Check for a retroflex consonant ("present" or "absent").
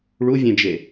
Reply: present